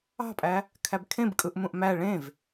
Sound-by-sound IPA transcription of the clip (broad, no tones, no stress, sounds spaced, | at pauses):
ɑ̤ pʼ æ | kʰ æ b kʰ ẽ b kʼ ɯ ʔ m ũ ʔ m æ ɭ ẽ v